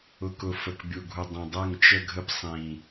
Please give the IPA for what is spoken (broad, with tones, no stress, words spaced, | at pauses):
ʊ˨kʊ˨ fə˨kbʲu˨ɡʱu˨dˤĩ˨ dˤə˦˨ŋt͡ʃə˦ɡʱə˦p sˤĩ˦